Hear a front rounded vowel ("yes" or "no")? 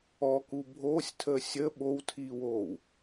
no